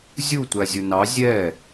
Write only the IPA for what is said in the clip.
zʲu tʷæzʲʊnɑ zʲɛ

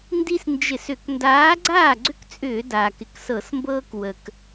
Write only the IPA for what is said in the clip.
ndi˦snd͡ʒɪ˧˩˧s ʏ˧˩˧k ndaː˨˥ɡ͡ǀaː˥˩ɡ͡ǀʏ˦kt͡sʼʏː˧˩˧ daː˩kɪ˩ksɤ˧˩˧smbɤː˦k wə˩k

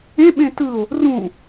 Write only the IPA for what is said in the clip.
ẽɓẽ tɯo̯ | rũ

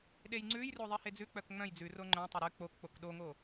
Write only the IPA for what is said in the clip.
ɗejŋ͡ǀʉjro ðˤɛhed͡zʉk͡pœk ŋ͡mœ̃j d͡zʉro ŋ͡ǃœ̃tˤɵ ɾʉ k͡pok k͡pokɗoŋo

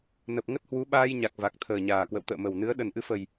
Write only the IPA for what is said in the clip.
nə˨˩p̚ŋə˦˥t̚hwu˨˦ ɓaː˧jɲa˨˩k̚ va˨˩k̚t̪ʰəː˨˩ɲaː˨˩kwə̰˧˨w t̪ə̰ː˧˨mə˨˩wnɨ˨˦ə̯ ɗə˨˩nʔɨ˨˦fə˨˩j

